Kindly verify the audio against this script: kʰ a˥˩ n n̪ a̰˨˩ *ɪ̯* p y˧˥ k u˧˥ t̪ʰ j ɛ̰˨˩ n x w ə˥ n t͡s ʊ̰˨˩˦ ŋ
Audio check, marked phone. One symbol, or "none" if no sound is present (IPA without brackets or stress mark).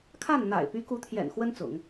ɪ̯